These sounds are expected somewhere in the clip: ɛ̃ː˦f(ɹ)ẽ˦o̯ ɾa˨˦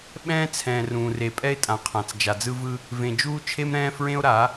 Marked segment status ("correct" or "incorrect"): correct